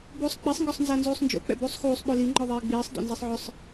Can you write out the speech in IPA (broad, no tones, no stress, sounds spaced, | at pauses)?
b uː sˤ k͡p i sˤ ŋ ɡ ɔ sˤ n z a n z uː sˤ n d͡ʒ o̰ k͡p ɛ̰ b uː sˤ x uː sˤ ɓ o l i ŋ͡ǃ ɔ ðˤ eː ɡ͡b iː sˤ d o̰ n z ɛ sˤ ʕ ʊ sˤ